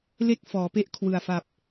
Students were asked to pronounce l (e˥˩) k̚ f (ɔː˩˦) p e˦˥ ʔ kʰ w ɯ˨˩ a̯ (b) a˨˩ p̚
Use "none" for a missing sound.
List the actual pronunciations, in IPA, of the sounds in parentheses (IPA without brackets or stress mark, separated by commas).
e˥˩, ɔː˩˦, f